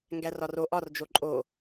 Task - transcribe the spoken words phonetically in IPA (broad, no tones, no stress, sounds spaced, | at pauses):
ŋ ɡ æ r ɒ r o ʔ ɒ r d͡ʒ o ǃʼ o